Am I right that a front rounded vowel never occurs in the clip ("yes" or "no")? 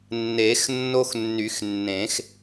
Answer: no